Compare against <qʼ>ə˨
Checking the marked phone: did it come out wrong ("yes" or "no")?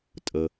yes